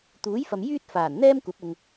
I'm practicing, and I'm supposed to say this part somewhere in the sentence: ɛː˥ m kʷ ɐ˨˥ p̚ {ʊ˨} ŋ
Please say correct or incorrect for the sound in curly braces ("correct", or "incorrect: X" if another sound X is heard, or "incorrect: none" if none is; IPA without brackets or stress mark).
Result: correct